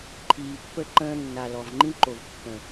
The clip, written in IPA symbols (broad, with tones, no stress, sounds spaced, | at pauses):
ǃʰ iː˨ pː ə˦ ǃ ə̃ː˦ nː a˨ l ɔ˨ v ŋ͡ǃ ĩ˦ ǃ o˨ v kː ə̃˨